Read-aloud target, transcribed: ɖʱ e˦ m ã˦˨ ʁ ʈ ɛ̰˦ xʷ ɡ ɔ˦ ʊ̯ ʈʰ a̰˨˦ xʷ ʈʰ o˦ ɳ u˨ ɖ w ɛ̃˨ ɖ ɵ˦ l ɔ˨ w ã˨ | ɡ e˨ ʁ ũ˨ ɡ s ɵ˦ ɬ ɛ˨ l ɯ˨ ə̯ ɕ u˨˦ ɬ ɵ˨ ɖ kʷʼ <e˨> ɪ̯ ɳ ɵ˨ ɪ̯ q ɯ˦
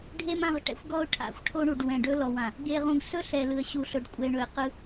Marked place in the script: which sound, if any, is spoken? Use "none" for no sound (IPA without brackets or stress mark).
ɛ˨